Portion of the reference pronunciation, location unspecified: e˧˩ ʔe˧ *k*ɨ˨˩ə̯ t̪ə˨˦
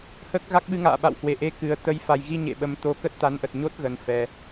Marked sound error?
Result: no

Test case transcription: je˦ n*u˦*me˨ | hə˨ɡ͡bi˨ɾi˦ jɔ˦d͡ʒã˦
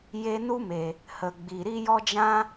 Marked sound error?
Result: no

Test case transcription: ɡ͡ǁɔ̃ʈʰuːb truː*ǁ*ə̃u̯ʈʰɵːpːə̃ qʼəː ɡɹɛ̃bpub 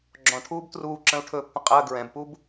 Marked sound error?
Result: no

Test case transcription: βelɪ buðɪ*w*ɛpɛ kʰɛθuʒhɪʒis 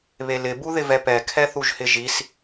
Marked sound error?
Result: yes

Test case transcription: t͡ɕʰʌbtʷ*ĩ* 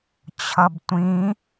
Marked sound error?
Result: no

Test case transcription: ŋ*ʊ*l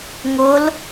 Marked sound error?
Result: no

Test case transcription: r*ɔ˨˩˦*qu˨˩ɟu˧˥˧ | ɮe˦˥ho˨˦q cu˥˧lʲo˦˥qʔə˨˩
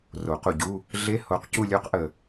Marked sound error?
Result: yes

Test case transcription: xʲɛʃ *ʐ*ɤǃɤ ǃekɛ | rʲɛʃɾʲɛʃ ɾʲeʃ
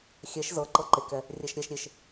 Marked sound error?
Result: yes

